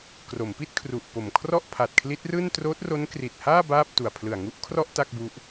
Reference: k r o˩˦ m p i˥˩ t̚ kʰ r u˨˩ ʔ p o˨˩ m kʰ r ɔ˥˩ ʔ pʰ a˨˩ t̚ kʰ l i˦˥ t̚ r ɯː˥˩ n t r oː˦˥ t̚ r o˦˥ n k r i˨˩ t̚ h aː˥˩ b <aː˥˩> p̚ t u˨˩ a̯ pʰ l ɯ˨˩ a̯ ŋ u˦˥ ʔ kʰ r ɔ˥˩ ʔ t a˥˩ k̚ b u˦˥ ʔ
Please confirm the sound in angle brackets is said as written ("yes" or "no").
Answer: yes